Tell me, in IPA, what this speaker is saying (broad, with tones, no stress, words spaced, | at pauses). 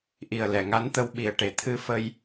ʔi˨˩ə̯lɛ˨˩˨ŋa˧˥nt̪ə˧w ɓi˨˩ə̯ʈe˨˩ t̪ʰɨ˧fə˧j